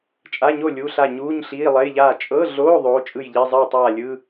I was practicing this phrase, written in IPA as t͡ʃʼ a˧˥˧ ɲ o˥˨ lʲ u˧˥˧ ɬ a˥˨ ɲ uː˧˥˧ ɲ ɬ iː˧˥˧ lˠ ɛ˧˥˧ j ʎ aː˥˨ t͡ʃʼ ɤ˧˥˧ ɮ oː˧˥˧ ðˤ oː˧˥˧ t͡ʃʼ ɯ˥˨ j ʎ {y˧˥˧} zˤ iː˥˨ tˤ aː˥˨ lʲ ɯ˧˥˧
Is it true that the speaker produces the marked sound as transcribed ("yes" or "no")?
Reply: no